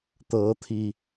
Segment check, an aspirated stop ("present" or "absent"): present